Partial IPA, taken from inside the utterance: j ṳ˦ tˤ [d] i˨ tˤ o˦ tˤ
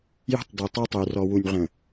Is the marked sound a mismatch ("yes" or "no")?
no